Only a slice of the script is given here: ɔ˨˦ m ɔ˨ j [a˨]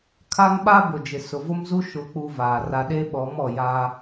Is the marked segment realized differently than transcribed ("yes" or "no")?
yes